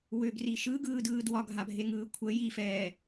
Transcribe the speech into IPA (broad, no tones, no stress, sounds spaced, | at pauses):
w ʏ ɡ r i ʃ ɯ ɡ ɯː d ɯː d w ɒ ɡʱ a bʱ e ŋ ɯː kʷʰ ə j i f ɛː